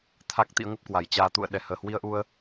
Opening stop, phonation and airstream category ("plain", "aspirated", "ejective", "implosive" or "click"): aspirated